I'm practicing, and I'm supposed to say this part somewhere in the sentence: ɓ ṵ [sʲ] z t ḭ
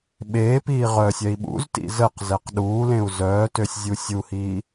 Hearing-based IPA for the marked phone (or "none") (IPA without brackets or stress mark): none